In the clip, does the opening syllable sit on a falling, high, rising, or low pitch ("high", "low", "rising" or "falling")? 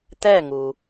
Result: falling